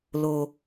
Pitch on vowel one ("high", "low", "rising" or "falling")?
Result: high